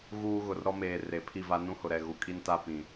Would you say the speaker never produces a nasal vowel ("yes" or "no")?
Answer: no